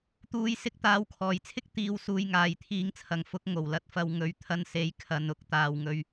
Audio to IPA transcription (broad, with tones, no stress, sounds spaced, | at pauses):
t̪ uː˧ j s ɪ˧ k̚ t̪ aː˨˧ w kʰ ɔː˨˩ j t͡sʰ ɪ˥ k̚ t̪ iː˨ w s uː˨ j ŋ aː˨ j t̪ʰ iː˧ ŋ t͡sʰ ɐ˨ ŋ f ʊ˨˥ k̚ ŋ o˨˩ w l ɐ˧ t̚ f ɐ˨ w ŋ ɵ˨˥ ɥ t̪ʰ ɐ˧ n s e˨˥ j kʰ ɐ˨ n ʊ˨˥ k̚ t̪ aː˨ w ŋ ɵ˧ ɥ